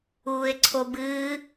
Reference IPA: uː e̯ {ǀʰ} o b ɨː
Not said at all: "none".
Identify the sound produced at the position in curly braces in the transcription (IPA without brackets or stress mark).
ǀʰ